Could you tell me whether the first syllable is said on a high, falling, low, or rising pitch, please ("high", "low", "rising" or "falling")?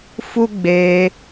high